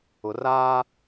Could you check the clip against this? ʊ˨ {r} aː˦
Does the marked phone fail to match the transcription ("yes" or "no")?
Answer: no